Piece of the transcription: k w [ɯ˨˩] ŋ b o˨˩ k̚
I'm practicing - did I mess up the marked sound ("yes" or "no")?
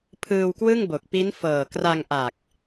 yes